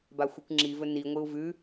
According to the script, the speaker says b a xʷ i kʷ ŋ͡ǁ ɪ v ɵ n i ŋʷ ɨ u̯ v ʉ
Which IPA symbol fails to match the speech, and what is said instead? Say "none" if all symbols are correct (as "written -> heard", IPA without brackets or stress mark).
ɪ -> i